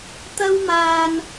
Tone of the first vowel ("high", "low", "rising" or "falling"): high